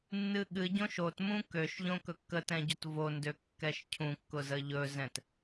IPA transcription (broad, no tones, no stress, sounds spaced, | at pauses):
nː ɨ ɠ ɨ ɟ õ ʃ o t m ũ k ø ʃ ʎ õ k ɵ kː ə t ɛ̃ ɟ o t v o n d ø kː ɛ ʃ cʰ ũ kː ʊ z ə ʎ ɵ z ɛ̃ t